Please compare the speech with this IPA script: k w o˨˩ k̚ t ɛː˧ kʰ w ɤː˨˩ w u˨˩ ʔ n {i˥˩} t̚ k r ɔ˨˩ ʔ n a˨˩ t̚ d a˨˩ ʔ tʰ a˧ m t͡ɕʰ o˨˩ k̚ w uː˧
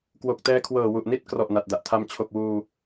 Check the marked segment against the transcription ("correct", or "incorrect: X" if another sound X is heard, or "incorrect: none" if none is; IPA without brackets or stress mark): correct